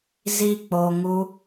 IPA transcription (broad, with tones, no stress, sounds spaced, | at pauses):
z i˧ k͡p o˧ ŋ u˦